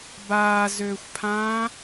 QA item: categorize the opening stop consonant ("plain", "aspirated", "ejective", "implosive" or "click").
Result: plain